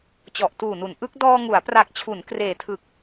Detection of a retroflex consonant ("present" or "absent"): absent